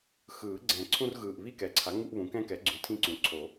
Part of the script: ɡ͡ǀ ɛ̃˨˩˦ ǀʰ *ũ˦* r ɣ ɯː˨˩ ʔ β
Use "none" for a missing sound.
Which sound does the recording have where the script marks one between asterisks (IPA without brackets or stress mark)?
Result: ũ˦